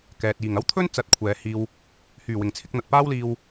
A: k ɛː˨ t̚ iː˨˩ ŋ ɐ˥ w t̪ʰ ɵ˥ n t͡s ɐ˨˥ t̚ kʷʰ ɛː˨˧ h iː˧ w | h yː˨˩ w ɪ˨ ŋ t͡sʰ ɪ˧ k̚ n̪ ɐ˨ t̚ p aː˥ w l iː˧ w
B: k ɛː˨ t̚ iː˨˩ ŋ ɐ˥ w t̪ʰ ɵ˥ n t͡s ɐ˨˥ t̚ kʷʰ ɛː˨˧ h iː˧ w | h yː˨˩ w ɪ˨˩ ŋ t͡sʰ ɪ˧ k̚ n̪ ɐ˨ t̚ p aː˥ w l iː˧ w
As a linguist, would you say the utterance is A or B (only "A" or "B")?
B